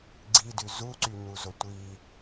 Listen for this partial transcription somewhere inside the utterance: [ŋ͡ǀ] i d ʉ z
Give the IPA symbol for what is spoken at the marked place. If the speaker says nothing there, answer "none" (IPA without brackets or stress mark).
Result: ɡ͡ǀ